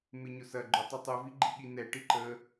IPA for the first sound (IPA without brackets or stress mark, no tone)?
m